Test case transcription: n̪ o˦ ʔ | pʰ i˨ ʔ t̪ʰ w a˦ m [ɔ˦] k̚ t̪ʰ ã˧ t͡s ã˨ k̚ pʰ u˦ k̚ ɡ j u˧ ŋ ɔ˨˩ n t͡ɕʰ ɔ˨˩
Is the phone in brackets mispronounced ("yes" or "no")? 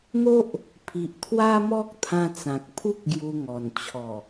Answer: no